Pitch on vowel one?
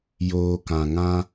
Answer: low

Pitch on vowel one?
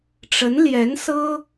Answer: rising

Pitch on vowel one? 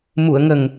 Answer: low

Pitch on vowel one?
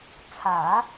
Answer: low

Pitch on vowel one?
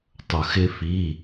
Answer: low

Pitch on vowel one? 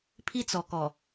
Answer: high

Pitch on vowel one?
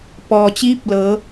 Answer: low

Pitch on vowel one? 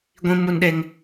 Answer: high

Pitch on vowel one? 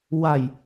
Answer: low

